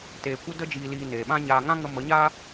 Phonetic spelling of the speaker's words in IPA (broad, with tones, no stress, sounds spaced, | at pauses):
t eː˨ kʷ ə˧ d ə˧ d͡ʒ iː˨ l iː˨ n eː˨ ɓ ã˦ ɲ aː˧ ŋ ã˦ ŋ ə˧ m ə˨˦ ɲ aː˦